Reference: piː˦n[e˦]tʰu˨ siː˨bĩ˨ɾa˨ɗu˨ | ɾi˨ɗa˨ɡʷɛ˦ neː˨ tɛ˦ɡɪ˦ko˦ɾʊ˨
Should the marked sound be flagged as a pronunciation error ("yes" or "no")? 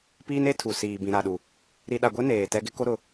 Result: no